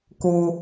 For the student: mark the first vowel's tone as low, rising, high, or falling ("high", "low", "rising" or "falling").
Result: low